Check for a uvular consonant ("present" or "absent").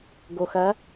absent